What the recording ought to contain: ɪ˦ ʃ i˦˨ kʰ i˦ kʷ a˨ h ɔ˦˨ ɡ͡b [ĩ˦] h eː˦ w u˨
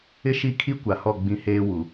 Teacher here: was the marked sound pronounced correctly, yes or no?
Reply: yes